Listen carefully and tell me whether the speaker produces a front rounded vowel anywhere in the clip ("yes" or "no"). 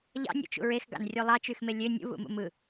yes